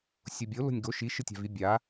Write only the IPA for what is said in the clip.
sʲ o bʲ o l o̤ nʲ ɡ o ʃ i ʃ ɨ tʲ a̤ v i bʲ a

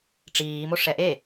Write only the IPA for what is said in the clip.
ʈ͡ʂ iː m o ʂ ɛ ʔ e

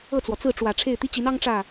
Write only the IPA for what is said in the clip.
ɤ˥˩ t͡s w ɔ˩ t͡s ɹ̩˥˩ ʈ͡ʂ w ä˨˩ ʈ͡ʂʰ e˥˩ ɪ̯ t̪ i˥ t͡ɕ i˧˥ n ɑ˥ ŋ ʈ͡ʂ ä˥˩

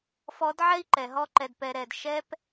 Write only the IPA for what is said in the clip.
f ɔ˧˥ d ʕ ɛ˥ i̯ ǃ ɛ˩˧ ɦ ɔ˥ ǃ ɛ˧ d p ɛ˧ ɾ ɛ˩˧ d ʃ ɛ˥ p

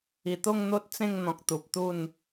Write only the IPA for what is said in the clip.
i˨˩ t̪ o˥˧ ŋ n̪ o˦ t̚ t͡s ẽ˥˧ ŋ n̪ ɔ̃˨ k̚ t̪ u˨ p̚ t̪ u˥˧ n

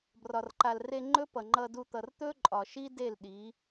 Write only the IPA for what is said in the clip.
b r ɒ˨ r ǃ a˨ l r e˧ ŋ͡ǃ ɵ˦ p ʌ˨ ŋ͡ǃ ʌ˧ d u˧ t̪ ʌ˨ r t̪ ɵ˦ ǃʼ ɒ˨ ʃ i˦ d e˦˨ l ɗ i˨˦

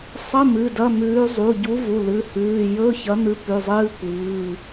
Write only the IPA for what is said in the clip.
sˤ ɐ˧˥˧ m ɨ˩˧˩ d ɐ˧˥˧ m ʉː˨˥ zˤ u˩˧˩ ɟ u˨˥ v u˩˧˩ l ɨ˩˧˩ h ʉː˩˧˩ j ɵ˧˥˧ ç ɐ˨˥ n̪ ɨ˨˥ p ʉ˩˧˩ zˤ ɨː˧˥˧ kʷ ɨː˩˧˩

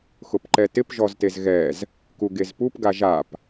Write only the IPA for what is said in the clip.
x ʊ p ǃ ɛ t ɪ p ʒ ɔ z t e z ɣ ɛ z | k u ɡ e z p u p ɡ a ʒ a p

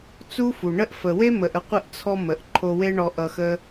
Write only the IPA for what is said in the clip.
t͡s u˦ f u˨ ɳ ə˦ ʔ f ə˨ w e˦ m ə˨ ʔ ə˧ qʷ ə˧ ʔ t͡sʰ ɔ˧ m ə˨ ʔ ǃʰ o˧ w e˦ ɳ ɔ˧ ʔ ʌ˧ x ə˦

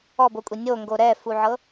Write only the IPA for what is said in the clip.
ɔ b o kʷʼ e nʲ o ŋ ɡ o ɾ ɛ f u ʕ ɤ

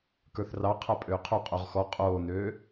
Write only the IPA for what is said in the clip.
k ə˞ θ r ɑ qʰ a pʼ øː qʰ o qʼ o ʁ x ɔ qʼ oː n øː

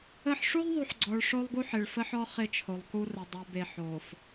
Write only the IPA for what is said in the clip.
ə˦ ħ ʂ u˦ lˠ ðˤ u˨ ħ ɡ͡ǀ ɔ˨ ɭ ʂ o˦ lˠ ɡ u˦ ħ ɪ˨ ɭ f ə˦ ħ ɔ˦ χ ɪ˦ t͡ʃʰ o˨ lˠ k u˦ r ə˨ dˤ o˨ b e˨ ħ o˨ f

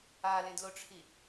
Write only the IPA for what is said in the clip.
a l ẽ d l o ʈ͡ʂʰ i

